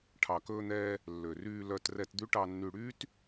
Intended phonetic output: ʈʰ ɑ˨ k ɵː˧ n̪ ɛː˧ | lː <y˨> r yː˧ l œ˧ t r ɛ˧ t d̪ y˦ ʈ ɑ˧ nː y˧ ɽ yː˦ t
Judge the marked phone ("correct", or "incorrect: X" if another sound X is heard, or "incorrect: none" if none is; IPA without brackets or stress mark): incorrect: ø˨